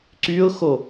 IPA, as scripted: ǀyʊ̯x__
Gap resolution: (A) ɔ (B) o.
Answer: B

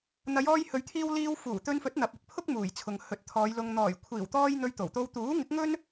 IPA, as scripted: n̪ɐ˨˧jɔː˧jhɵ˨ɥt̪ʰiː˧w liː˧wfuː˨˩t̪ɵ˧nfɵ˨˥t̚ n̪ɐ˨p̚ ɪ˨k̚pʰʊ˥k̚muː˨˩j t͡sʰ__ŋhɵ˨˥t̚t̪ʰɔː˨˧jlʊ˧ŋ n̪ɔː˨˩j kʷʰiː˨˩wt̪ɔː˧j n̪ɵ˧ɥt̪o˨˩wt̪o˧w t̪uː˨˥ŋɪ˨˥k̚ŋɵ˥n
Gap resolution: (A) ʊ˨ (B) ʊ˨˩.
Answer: A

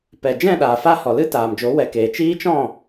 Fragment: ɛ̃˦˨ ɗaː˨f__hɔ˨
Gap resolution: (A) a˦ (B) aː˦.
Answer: A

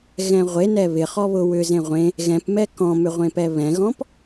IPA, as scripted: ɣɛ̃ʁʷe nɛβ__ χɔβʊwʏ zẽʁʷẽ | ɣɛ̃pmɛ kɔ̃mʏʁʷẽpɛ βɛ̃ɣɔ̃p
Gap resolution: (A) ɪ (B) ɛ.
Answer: A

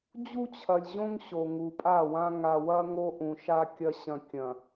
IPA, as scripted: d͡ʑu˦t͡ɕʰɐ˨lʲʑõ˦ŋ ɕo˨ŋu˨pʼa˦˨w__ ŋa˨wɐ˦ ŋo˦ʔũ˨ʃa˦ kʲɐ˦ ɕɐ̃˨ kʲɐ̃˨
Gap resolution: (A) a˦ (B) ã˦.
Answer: B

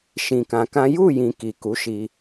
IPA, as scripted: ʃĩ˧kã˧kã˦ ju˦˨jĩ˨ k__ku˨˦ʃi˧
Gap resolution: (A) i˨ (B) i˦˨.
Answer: A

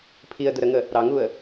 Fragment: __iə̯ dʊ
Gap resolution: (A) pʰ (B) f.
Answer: A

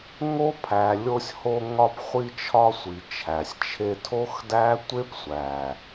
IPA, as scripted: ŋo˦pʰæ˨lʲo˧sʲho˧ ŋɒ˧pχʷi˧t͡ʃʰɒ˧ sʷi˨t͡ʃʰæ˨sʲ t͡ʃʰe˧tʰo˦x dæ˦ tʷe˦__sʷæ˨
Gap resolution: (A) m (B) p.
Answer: B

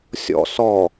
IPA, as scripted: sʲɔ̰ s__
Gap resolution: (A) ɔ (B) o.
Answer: A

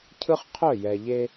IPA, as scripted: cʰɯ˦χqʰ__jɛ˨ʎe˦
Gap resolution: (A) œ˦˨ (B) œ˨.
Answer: A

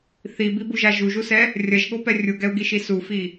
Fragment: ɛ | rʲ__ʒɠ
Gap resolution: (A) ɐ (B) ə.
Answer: A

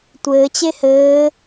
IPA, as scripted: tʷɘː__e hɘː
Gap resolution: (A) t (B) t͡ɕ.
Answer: B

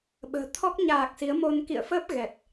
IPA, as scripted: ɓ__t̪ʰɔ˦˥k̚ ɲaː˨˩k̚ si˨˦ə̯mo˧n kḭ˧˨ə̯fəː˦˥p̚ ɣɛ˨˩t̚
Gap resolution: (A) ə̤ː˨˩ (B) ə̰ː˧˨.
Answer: A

